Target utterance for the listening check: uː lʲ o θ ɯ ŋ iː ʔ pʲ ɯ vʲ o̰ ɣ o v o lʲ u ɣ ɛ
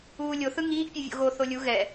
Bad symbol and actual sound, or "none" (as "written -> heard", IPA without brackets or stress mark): v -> θ